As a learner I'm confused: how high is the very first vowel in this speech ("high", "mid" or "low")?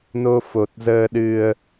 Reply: mid